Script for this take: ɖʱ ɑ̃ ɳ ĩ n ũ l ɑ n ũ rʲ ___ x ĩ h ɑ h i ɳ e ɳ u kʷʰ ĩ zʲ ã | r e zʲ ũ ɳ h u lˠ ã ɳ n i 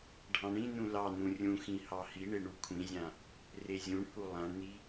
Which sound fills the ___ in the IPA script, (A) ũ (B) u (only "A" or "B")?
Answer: A